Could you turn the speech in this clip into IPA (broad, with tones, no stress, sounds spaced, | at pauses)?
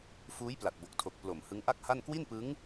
f uː˦˥ j p l a˨˩ t̚ b o˨˩ k̚ tʰ o˨˩ k̚ p l o˨˩ m h ɯ˦˥ ŋ ʔ a˥˩ k̚ h a˥˩ n k w i˥˩ n p ɯ˦˥ ŋ